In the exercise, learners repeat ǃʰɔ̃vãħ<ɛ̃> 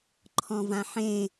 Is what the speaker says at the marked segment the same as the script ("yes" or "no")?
no